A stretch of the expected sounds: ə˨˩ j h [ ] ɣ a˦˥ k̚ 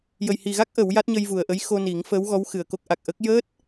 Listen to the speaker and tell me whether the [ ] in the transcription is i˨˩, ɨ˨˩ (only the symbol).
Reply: i˨˩